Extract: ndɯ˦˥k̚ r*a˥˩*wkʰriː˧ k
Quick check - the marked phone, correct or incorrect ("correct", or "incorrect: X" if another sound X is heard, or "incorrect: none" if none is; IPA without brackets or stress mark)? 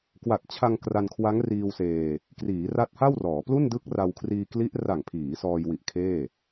incorrect: a˧